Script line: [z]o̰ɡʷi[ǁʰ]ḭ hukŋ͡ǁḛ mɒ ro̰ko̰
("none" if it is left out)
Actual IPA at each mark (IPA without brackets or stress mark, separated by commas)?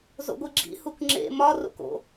z, ɡ͡ǁ